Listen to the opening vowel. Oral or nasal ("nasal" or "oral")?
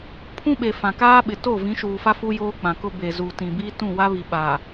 nasal